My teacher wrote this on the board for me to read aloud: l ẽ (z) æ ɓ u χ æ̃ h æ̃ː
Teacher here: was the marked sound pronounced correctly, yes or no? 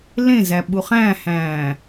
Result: yes